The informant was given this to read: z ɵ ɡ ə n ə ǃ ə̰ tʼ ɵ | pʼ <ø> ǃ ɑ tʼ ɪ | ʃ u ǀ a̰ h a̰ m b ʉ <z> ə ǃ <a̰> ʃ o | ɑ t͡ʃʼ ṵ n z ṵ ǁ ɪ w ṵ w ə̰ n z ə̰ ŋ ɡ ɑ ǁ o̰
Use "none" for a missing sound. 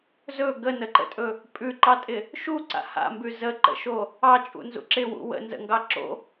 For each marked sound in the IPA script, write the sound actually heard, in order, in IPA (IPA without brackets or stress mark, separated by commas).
ʉ, z, ə̰